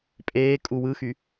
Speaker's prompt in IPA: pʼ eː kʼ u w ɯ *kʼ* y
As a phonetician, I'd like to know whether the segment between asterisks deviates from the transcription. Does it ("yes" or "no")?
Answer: yes